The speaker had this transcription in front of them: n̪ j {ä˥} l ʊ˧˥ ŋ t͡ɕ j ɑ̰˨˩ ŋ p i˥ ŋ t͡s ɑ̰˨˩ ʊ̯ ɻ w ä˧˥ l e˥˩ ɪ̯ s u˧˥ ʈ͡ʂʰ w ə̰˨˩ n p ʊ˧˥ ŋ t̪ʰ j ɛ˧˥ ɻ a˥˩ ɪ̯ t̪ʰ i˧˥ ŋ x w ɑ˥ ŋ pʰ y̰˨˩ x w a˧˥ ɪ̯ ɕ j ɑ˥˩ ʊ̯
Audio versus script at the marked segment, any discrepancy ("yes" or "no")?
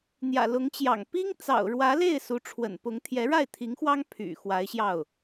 yes